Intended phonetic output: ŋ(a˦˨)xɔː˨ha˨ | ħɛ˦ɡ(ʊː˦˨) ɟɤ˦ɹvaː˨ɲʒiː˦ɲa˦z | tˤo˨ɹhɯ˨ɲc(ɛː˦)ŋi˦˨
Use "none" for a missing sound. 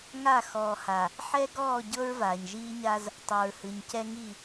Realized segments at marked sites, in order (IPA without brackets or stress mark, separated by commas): aː˦˨, ɔː˦˨, ɛ˦